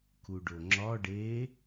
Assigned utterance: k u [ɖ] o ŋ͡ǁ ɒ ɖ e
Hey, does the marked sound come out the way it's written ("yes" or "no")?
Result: yes